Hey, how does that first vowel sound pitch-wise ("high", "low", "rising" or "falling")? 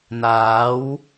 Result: rising